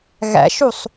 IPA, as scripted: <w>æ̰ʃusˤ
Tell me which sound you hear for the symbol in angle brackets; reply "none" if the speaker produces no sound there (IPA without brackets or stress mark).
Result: ɣ